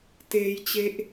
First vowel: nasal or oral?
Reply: oral